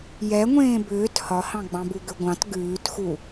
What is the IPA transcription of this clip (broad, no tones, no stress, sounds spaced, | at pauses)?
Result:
j ɛ ŋʷ ẽː b ʏː t h ɒ h ɑ̃ ɡ͡b ɑ̃ b u ɡ ʏ ɡʷ ɑ̃ t ɡ ʉː t x u